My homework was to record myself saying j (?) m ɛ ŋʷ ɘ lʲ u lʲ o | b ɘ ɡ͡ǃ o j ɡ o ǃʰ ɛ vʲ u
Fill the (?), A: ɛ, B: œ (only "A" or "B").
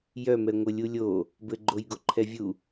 B